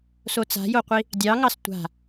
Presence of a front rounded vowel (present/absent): absent